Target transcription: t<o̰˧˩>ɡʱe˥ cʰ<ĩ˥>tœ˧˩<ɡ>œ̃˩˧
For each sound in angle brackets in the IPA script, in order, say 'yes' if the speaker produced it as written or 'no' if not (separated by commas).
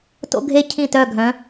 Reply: no, no, no